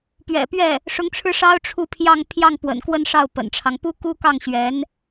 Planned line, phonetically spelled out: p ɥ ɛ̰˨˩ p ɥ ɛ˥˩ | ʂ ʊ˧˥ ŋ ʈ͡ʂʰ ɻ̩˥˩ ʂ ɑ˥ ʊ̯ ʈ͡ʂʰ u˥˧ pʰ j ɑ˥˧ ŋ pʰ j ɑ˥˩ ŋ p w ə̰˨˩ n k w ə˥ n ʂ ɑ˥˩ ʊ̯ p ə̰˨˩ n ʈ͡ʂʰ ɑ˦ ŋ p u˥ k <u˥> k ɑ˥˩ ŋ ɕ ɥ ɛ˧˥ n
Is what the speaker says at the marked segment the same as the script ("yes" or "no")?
yes